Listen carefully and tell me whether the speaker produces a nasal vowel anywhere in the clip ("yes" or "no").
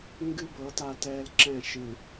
yes